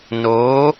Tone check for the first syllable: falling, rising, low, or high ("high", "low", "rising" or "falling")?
rising